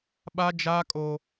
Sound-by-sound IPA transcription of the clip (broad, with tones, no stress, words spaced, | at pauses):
ɓa˦d͡ʒaː˦kʼo˦